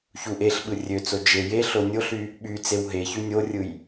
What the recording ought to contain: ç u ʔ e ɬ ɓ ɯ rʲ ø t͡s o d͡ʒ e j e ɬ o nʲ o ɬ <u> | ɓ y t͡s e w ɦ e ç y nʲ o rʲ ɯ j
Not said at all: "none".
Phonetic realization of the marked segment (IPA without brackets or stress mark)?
y